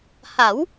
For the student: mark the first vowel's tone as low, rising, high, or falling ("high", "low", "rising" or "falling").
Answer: rising